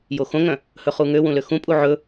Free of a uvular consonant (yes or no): no